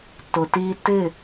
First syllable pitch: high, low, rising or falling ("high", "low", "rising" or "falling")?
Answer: low